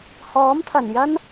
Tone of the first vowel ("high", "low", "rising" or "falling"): rising